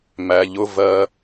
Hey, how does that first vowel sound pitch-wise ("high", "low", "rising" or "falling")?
low